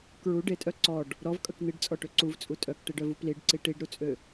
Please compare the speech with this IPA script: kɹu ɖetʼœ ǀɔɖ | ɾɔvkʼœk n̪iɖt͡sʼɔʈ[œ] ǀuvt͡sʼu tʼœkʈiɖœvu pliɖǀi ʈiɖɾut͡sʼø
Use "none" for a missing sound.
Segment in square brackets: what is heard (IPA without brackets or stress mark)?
ø